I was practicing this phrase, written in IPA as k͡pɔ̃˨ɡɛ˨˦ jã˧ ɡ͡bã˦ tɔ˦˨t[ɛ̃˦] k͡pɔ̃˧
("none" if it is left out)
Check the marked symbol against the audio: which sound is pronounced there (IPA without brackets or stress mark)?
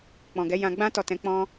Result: ɛ̃˧